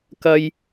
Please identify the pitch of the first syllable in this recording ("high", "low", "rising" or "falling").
high